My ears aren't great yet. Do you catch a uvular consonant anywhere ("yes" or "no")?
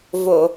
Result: no